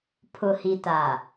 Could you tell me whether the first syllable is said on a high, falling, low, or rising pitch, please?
low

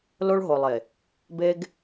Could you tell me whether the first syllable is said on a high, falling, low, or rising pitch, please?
high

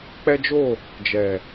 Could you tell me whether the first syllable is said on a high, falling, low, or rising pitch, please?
high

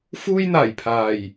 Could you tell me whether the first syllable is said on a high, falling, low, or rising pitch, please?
high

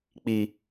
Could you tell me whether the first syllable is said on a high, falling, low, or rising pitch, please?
high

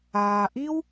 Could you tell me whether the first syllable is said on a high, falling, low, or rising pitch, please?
low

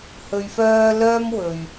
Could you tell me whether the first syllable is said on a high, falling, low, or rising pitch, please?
low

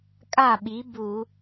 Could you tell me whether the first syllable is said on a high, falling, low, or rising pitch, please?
falling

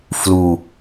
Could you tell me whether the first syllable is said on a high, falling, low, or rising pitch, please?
low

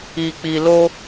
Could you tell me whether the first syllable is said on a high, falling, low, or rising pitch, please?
low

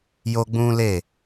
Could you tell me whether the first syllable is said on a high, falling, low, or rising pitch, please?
high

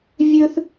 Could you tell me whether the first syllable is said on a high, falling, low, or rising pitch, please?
high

